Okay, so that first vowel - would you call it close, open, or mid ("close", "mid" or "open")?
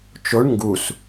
mid